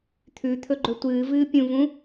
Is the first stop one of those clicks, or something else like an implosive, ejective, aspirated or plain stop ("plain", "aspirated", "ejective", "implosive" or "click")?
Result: aspirated